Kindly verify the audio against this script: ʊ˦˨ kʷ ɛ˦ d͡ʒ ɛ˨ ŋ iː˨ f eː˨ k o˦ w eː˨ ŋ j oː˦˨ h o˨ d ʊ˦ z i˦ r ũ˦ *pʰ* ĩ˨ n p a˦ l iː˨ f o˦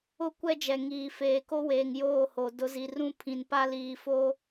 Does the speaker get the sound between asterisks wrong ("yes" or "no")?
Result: no